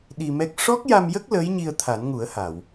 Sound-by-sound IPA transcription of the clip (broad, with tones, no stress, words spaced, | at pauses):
ɗi˧mɛ˦˥k̚ ʂɔ˦˥k̚ja˧mjə˦˥k̚ ləː˧˥jɲi˧ə̯ t̪ʰa˨˩˦nŋu˨˩˦ə̯ ha˨˩˨w